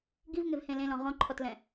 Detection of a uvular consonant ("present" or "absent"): present